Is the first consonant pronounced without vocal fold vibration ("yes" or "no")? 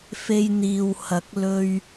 yes